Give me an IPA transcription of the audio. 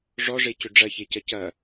ʐ ɔ ʐ e c ʏ ɖ͡ʐ ɐ ç e c ɐ c ɐ

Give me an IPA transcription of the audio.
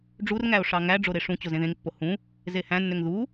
ɖ͡ʐ u r ŋ æ o̯ ʂ ɑ ŋ æ ɖ͡ʐ o ɾ e ʂ ũ t͡ɕ o z ẽ ð ẽ ŋ pː o h ũ | z e h æ̃ nː ø ŋ ð u

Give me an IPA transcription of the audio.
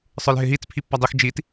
sˤ ə˞ l ɦ ɪ ɦ i t͡s pʰ i pː a dˤ e x d͡ʒ i t

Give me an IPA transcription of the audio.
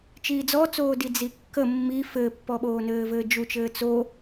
t͡ʃ iː d͡z ɔ t͡s oː d i d͡z i kː ə mː i f ɘː pː ɔ ɓ oː n ɘː v ɘː d͡ʒ u t͡ʃ ɘː t͡s o

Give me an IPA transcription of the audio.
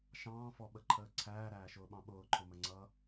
ʃ ɑ̃ː f ɔ ɓ ə ǃʰ əː ǀʰ æː ɾ æː ʃ ʊː ɓ ɑ̃ ɓ ʊː ǃʰ ʊ m ə ŋ͡ǀ ʌː

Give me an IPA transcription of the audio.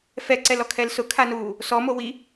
f ɛ ǀ ɛ l ɔ kʰ ɛ l s ʊ kʰ a n uː | s ɔ m o w i

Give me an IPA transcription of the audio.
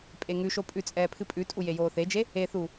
pʼ e ŋ ʉ ʃ o pʼ ʉ t͡sʼ ɛː pʰ ɨ pʼ ʉ tʼ u j e j oː θ e d͡ʒ e | e θ u

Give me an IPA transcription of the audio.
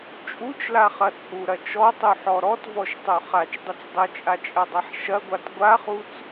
t͡ʃʼ u t͡ʃ l a χ ɐ t͡sʼ u ɾ ɐ t͡ʃ ɔ tˤ u ħ ɔ ɾ ɔ t v ɔ ʃ tˤ o χ a t͡ʃ dˤ ɘ t͡s dˤ ɘ t͡ʃʼ a t͡ʃʼ ɐ dˤ a ħ ʃ ɐ ɡʷ a t ɡʷ a χ u t͡s

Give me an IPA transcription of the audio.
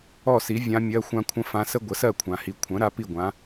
ɔ˥˩ s i˩˥ vʲ ã˧˥ mʲ ɜ˧˥˧ xʷ ã˥ kʷʰ ə̃˥ f ã˧˥ s ə˥ ɡʷ ə˩˥ s ɜ˥˩ kʷʰ ã˨ h i˨ kʷʰ ə̃˩˥ ɾ a˧˥ p i˥˩ ɡʷ ã˩˥

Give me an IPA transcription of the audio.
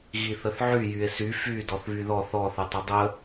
ɣ i θ ə θ ʕ y j y e̯ s y f y d ɔ θ β y ð ɔ θ ɔ θ ə tˤ ə dˤ ə

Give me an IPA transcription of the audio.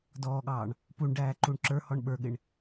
d ɔː ɠ ɑː ɳ | p u ɳ ɖ æː ǃ u ɳ ǁ ə˞ h ɔ ɳ ɓ ə˞ ɠ ɪ ɳ

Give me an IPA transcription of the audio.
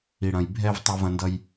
i˩ ɽ ɐ̃˩ j bʱ ɛ˧ v tˤ ɐ˧ v ɐ̃˧ n d ʌ˧ j

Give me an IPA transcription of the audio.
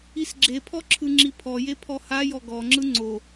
i s ɡ͡ǁ e pʰ ɔ ǁʰ ɯ ŋ͡ǁ i pʰ ɔ j e pʰ ɔ h a j ɔ ɡ ɔ ŋ͡ǁ ɯ ŋ͡ǀ o

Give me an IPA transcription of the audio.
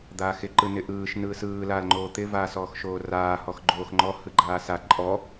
d̪ aː x ɪ ǃ ɯ n ɪ ʔ ɯː ʃ n ɯː s ɯː l aː l ŋ͡ǃ oː t̪ ɪ v aː s ɔː x ʃ oː r aː h ɔ x ɡ͡ǃ oː x ŋ͡ǃ ɔ h ɯ ɡ͡ǃ aː s a ǃʼ ɔ

